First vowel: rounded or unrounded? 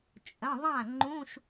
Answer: unrounded